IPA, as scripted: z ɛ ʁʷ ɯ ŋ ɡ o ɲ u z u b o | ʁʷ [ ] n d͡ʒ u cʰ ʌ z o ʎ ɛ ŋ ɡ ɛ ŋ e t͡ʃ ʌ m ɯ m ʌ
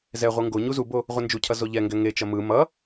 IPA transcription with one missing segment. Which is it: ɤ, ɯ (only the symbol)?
ɯ